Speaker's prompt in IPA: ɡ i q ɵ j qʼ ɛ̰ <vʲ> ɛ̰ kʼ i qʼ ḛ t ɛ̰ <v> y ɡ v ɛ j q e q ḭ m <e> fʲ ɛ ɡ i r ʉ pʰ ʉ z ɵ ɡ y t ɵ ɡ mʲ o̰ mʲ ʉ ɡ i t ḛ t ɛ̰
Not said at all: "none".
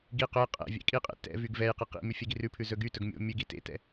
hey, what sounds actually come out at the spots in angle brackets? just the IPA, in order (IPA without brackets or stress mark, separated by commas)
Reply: vʲ, v, y